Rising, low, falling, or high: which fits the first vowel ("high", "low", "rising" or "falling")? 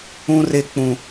high